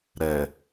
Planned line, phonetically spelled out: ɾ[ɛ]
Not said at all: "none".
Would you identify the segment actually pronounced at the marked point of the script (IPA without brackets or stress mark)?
ɛ